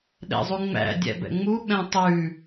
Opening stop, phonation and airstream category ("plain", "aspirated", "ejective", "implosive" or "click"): implosive